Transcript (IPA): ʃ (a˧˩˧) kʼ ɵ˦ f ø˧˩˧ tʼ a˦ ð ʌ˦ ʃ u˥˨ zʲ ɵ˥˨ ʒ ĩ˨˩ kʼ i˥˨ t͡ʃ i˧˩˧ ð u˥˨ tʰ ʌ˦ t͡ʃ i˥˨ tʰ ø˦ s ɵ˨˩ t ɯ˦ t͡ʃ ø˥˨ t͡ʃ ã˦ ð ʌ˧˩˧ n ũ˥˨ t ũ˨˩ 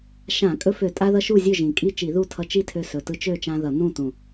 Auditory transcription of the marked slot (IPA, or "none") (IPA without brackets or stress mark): ã˧˩˧